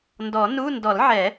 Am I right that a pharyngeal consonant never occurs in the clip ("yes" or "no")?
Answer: no